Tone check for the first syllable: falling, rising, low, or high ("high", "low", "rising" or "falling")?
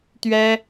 high